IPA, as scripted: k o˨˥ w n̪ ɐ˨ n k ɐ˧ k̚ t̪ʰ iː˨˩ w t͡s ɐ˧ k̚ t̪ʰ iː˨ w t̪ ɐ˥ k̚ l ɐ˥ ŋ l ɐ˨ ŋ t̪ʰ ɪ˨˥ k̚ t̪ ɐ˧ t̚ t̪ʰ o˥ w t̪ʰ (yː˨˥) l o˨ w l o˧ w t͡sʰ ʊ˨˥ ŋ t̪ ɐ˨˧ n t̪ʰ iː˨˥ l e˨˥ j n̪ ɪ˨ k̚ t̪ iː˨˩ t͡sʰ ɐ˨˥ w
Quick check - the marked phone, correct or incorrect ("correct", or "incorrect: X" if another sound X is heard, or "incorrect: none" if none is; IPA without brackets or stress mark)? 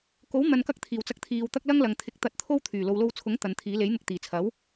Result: incorrect: yː˨˩